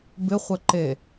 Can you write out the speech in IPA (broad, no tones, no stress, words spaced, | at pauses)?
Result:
bɪχʷɛ ǃe